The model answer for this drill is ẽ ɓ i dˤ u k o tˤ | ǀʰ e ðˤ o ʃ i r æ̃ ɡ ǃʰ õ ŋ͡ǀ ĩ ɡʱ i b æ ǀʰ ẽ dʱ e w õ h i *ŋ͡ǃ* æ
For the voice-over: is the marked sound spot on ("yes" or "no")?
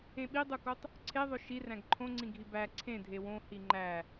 yes